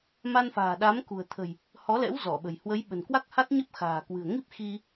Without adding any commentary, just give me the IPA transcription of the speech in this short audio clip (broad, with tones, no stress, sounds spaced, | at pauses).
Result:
m a˧ n f a̤ː˨˩ ɗ a˨˦ m k ṳ˨˩ ə̯ t̪ʰ ə̤˨˩ j | h ɔ˨˦ l ɛ̰˧˥ w z ɔ˧˩ ɓ ə̤˨˩ j h w ə˨˦ j ɓ ə̤˨˩ n k w a˦˥ k̚ h a˦˥ t̚ ɲ ə˦˥ p̚ x a̤ː˨˩ k w ɨ̤˨˩ ə̯ ŋ i˦˥ p̚ x i˧